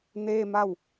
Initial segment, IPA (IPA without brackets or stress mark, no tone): n